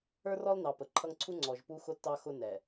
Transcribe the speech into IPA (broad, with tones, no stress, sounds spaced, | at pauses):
ə˞˦ r ɔ˦ l n ɑ˨ p ə˨ ǃʰ ʌ˦ ŋ ǀʰ u˦ ŋ͡ǀ ɔ˨ ʒ p u˦ x ʊ˦ tː ɑ˦ x ʊ˦ n ɛ˨